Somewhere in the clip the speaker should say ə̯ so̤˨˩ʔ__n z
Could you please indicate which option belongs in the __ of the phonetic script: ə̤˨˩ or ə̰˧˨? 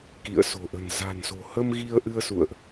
ə̤˨˩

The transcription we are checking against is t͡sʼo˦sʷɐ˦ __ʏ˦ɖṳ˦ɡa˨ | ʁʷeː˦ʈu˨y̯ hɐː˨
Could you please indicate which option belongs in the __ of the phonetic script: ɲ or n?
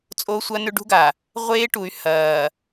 n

